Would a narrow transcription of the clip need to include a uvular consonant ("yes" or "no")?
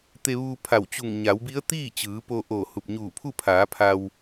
no